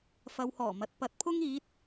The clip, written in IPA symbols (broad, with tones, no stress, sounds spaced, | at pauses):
f ɐ˨ w h ɔː˨˩ m ɐ˨ t̚ p ɐ˨˥ t̚ pʰ ʊ˥ ŋ iː˨˥ t̚